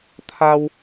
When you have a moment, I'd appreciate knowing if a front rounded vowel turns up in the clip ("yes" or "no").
no